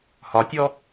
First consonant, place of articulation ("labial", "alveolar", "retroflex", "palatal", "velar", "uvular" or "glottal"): glottal